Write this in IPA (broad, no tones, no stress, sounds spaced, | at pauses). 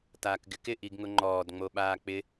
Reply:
t aː k ɡ ɪ k ɪ ʔ i ɡ ŋ ʊ ŋ͡ǃ ɔː d ŋ͡m o ɓ aː k͡p ɪ